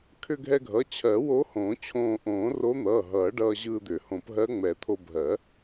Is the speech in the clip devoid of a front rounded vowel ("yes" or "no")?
no